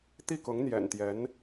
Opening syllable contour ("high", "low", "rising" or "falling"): falling